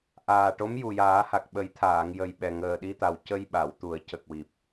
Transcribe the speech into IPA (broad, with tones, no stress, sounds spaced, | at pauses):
ʔ aː˨˩ ʈ o˧˥ m j u˨˩ j aː˨˩˦ h a˨˩ k̚ ɓ ə˨˩˦ j t̪ʰ aː˨˩˨ ŋ j ə˨˩ j ɓ ɛ˨˩ ŋ əː˨˩ ɗ i˧ t̪ a˨˩ w c ə˧ j ɓ a˨˩˨ w t̪ u˨˩˦ ə̯ c ə˨˩ k̚ w i˨˩ p̚